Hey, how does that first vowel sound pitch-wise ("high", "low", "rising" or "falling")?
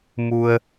low